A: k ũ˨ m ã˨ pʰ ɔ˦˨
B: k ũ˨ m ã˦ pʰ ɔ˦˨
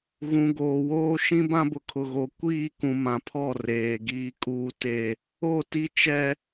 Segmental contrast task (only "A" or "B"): A